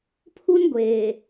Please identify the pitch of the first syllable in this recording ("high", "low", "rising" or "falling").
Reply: high